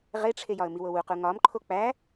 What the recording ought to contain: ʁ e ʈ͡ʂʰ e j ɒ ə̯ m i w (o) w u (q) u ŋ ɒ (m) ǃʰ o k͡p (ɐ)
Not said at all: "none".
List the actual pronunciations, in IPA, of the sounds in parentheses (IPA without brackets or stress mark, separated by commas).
o, q, m, æ